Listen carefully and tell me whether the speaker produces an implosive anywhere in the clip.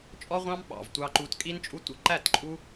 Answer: yes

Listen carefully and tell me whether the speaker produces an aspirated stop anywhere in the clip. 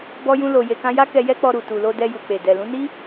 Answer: no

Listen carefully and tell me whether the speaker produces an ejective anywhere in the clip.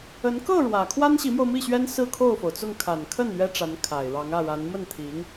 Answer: no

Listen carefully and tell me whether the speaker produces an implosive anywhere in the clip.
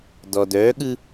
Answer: yes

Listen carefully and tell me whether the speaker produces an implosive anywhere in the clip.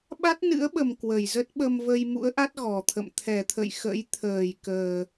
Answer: yes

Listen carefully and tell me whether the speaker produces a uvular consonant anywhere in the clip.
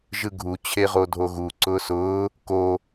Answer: yes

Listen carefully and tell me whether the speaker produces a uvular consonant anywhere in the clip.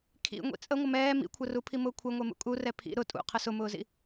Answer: yes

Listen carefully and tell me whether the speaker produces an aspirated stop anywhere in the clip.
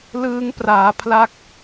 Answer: yes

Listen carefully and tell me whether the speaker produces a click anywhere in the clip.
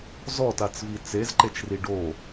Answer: yes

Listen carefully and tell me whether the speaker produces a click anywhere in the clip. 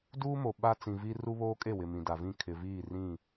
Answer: no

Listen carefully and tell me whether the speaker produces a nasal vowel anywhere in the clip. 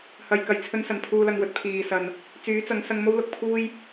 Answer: no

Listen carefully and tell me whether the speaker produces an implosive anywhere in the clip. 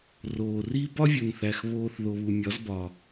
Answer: no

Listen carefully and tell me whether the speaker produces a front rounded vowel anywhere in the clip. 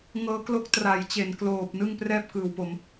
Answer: no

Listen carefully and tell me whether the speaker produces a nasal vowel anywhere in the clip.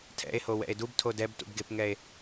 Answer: no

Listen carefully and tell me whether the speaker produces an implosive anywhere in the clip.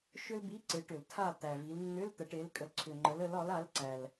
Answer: no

